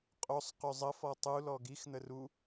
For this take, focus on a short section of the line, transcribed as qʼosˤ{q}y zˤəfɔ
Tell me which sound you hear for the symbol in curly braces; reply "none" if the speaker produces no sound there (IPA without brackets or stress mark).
q